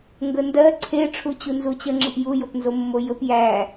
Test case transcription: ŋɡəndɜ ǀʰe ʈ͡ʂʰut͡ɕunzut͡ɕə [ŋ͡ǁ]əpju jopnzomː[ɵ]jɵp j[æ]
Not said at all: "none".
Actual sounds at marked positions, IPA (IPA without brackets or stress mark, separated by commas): ŋ͡ǁ, o, æ